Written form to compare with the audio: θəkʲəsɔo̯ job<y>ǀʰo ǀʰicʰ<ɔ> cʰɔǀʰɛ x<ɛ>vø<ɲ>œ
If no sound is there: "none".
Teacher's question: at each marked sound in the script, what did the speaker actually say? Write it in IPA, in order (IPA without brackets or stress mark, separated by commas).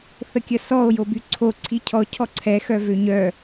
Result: y, ɔ, œ, ɲ